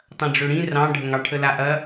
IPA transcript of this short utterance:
tˤ ɐ̃ ɖ͡ʐ ø ɽ ĩ r ɑ̃ ɖʱ ə ŋ ɑ ʈʰ ə l a ʔ ɐ

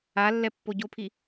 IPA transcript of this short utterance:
a lː ɛ pː o ɟ o pʰ i

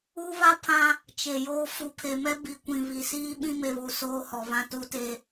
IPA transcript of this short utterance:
u˦ β a˦ pʰ ã˦ | t͡ʃ e˨ j oː˦ f u˨ pʰ e˨ m ɛ˦ b i˨ kʷ ĩ˨ β i˨ s iː˦ ɓ ĩ˦ m e˨ β u˨ s oː˦ h ɔ˨ β ã˦ t u˦ t e˦

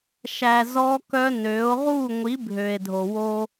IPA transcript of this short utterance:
ʃ æ˨ z ɔ˦ k œ˦ n ø˨˦ o̯ ʁ u˦˨ ŋʷ i˨˦ bʱ ø˨ e̯ dʱ o˨ w o˦

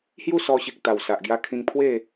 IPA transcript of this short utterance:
h j u˥˧ s ɔ˧ ɕ i˨ k̚ t̪ a˨˩ w s a˨ ʔ ɡ j a˧ kʰ ĩ˧ ŋ pʰ w e˥˧

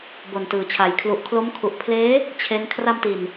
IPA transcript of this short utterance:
b o˨˩ n t ɯː˨˩ t͡ɕʰ a˨˩ j kʰ l u˨˩ ʔ kʰ l o˦˥ m kʰ u˨˩ ʔ pʰ l eː˦˥ | t͡ɕʰ e˦˥ n kʰ r a˧ m t i˨˩ n

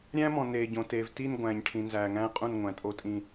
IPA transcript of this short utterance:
ɾʲ æ̃˦ m ɔ̃˨ n eː˨ ɟ õ˨ t eː˨ v t i˦˨ n ɡʷ æ̃ː˨ ɲ ʈʰ ĩ˨ n z æː˨ ŋ æ̃ː˦ qʼ ũ˦˨ n ŋʷ æ̃˨ tʼ o˦ tʼ ĩ˦

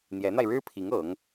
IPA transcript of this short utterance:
n̪ j ɛ˧˥ n̪ a˧ ɪ̯ ɻ ɻ̩˥ pʰ i˧˥ ŋ ɤ˧˥ ŋ

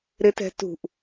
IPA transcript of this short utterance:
ɾ ɪ t ɛ̤ t ṳ ʔ

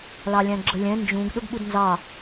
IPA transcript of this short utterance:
l ɑ lʲ æ̃ ɡ͡ǁ ə lʲ ɛ̃ n d͡ʒ ũ ɡ ɗ ʊ ɡ ɓ u d n z ɑ

